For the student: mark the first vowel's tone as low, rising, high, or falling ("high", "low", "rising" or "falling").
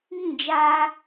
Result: falling